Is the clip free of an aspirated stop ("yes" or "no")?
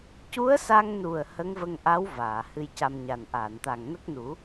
yes